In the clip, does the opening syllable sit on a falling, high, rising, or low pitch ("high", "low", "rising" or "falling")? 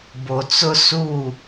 low